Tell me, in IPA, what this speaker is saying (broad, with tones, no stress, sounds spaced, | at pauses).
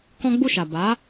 k ɔ̃˦ ɡ͡b u˦˨ ʃ a˨ b a˨˦